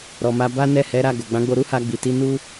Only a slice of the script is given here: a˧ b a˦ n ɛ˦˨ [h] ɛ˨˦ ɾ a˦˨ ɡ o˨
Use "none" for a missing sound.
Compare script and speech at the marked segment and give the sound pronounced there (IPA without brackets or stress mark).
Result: h